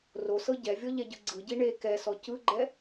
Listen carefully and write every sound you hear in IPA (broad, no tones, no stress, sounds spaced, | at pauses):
r o s ɤ ɟ ɛ vʲ ɔ ʎ ɛ ɟ ɯ ɡ͡ǀ ɯ ɟ i ɳ e k ɛ s ɔ c ɯ ɡ͡ǃ ɛ